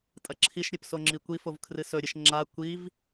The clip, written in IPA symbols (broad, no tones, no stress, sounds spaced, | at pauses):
tʼ ɐ ǁʰ i ʃ ɾʲ ɨ p s o ŋ͡ǁ i kʷ i f o v kʰ r ɨ s ɵ ɾʲ ɨ ʃ ŋ͡ǁ a kʷ i v